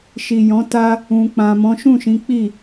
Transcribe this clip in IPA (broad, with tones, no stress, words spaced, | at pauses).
ʃi˨jɔ̃˨˦ta˦ | ũ˨k͡pã˨mɔ̃˨˦ ʃũ˦˨ʃĩ˨˦ k͡pi˦˨